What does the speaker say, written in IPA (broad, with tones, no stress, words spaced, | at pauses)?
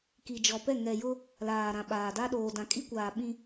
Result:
ki˨d͡ʒɔ˨pɛ˦˨ ŋɛ˨jʊ˦ | laː˨ɾã˨ɓaː˨da˦ ɗoː˨dã˨kʼi˦kʷaː˨ ɓĩ˦